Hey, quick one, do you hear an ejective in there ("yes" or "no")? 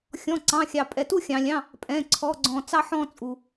yes